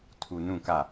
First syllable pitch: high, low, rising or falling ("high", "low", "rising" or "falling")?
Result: low